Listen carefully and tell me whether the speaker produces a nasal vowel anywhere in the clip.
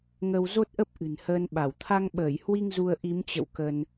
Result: no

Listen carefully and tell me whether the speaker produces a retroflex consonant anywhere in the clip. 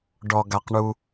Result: yes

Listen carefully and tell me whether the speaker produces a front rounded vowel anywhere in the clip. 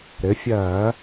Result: no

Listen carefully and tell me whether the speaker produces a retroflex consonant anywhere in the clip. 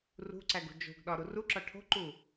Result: yes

